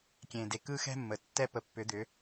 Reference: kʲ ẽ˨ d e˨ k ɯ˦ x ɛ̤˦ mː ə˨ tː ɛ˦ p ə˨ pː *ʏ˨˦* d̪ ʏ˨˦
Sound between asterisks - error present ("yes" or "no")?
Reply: no